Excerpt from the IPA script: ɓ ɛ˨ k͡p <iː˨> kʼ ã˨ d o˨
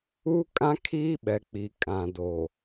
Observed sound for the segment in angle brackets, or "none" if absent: i˨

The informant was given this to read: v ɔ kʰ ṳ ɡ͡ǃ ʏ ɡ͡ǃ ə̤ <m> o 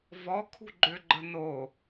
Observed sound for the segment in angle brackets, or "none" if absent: n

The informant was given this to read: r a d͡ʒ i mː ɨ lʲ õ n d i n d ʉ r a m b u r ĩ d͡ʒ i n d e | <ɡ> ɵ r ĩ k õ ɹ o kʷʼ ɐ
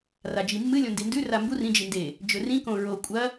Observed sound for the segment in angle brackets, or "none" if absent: d͡ʒ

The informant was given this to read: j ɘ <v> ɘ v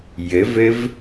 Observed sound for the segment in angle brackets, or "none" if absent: v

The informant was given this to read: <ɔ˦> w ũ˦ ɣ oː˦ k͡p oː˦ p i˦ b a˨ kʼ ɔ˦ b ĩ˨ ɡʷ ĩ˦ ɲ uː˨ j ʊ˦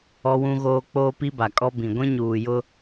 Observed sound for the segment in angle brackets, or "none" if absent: ɔ˦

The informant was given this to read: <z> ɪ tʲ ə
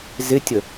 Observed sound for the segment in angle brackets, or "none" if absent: z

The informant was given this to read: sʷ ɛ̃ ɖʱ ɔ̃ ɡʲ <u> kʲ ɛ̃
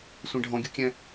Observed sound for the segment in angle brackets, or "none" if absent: u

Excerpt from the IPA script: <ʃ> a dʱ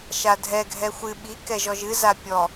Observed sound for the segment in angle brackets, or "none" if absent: ʃ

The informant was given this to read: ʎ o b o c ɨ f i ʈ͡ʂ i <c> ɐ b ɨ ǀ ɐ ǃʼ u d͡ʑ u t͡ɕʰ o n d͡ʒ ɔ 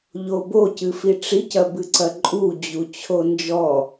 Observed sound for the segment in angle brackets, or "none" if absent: c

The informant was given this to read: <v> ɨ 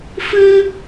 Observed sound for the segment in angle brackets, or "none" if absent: f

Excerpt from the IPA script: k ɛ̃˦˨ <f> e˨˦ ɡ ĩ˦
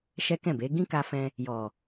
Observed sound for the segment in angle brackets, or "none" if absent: b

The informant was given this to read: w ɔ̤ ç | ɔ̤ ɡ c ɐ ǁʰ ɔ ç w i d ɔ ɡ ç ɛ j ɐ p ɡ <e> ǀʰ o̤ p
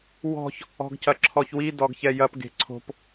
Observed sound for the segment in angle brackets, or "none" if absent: e̤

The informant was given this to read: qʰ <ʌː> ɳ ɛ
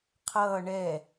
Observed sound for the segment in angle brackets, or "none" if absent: ʌː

